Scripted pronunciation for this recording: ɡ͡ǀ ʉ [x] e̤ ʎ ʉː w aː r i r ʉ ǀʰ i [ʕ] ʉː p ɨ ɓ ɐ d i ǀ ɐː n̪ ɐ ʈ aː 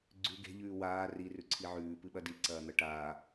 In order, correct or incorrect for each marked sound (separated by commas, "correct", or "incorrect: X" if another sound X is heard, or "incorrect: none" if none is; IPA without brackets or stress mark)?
incorrect: ɡ, correct